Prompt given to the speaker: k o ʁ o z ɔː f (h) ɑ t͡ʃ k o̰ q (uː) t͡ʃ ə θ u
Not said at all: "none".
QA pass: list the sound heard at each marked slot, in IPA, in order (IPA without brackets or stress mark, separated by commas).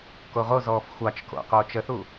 xʷ, oː